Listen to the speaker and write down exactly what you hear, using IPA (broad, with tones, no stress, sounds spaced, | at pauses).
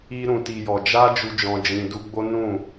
i˧ ɾ ũ˨ t i˨ j ɔ˨ d͡ʒ a˧ d͡ʒ u˦ d͡ʒ ɔ̃˧ d͡ʒ ĩ˧ d u˧ ɡ͡b o˦ n ũ˦˨